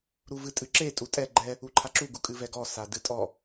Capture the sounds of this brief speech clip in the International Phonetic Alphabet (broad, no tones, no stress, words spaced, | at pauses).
ɾuvɨtʼɨǁe tʼutʼɛ ɡ͡ǃɛ | uǃʰaǁu ɡukʼɨvɛɡɔ sadɨtʼɔ